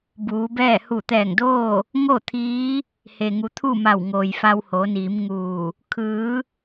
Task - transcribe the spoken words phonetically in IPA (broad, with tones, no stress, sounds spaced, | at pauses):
b uː˩˧ b ɛː˥˨ h u˧˩ t̪ ɛː˧˩ ŋ d oː˥˨ | ŋ o˥˨ t̪ʰ iː˧˥ | h e˩ ŋ u˩˧ t̪ʰ u˥˨ m a˧˩ w ŋ oː˩ j f a˧ w h oː˩˧ n iː˩˧ m ŋ uː˧˩ | kʰ ɯː˩˧